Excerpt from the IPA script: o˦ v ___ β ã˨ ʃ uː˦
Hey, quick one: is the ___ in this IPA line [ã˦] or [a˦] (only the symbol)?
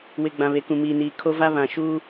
a˦